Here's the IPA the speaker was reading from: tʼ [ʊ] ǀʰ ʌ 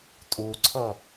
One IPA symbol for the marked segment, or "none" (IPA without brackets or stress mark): u